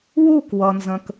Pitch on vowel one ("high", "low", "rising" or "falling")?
falling